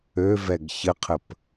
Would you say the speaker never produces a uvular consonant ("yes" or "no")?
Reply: no